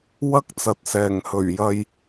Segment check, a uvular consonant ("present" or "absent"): absent